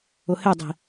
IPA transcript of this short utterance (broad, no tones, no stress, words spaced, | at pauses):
ʊhedˤi̤